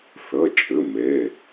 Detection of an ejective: present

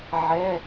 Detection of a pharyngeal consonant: present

